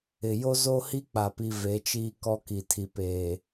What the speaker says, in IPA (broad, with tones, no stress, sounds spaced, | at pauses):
ɪ˨ j o˦ z o˦ h i˦ k͡p a˨ p i˨ v e˨˦ t͡ʃ iː˦ k ɔ˦ k i˨ tʰ i˨ p eː˨